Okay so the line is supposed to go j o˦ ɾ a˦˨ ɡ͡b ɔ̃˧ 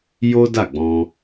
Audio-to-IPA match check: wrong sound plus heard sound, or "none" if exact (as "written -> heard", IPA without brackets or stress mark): ɾ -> d